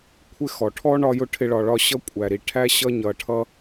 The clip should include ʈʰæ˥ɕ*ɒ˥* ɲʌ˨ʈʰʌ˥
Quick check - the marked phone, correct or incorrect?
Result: incorrect